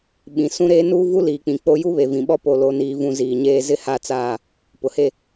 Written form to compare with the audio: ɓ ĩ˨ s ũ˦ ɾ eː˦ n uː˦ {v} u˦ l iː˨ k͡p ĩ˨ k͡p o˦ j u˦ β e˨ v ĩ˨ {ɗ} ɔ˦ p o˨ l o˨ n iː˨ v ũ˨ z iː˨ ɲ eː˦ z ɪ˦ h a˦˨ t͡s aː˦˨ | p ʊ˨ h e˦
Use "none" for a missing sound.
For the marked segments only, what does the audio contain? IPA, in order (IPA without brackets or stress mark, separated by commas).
v, ɓ